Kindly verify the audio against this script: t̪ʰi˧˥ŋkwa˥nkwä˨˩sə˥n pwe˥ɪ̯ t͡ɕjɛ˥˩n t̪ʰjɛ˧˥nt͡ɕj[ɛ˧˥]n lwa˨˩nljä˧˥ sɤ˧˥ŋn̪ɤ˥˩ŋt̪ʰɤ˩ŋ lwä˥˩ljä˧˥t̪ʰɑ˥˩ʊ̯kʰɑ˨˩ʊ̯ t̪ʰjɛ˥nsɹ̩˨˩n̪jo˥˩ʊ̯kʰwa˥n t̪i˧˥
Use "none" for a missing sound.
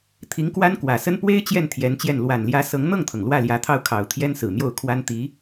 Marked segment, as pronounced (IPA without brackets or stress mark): ɛ˥˩